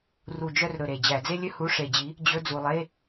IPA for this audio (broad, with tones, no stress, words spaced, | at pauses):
ru˨˩d͡ʒœ˦˨r ɾɵ˨˩ɾe˨˩ d͡ʑæ˧˩˧d͡ze˥lʲɵ˥ hu˧˥˧ʂe˧˩˧d͡ʑi˨˥ | d͡ʑɵ˧˥˧d͡zu˨˩lˠe˧˥˧